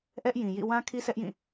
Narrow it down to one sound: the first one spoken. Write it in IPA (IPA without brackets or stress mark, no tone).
ʔ